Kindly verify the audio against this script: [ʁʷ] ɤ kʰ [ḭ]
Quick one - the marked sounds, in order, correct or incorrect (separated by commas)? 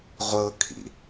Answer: correct, correct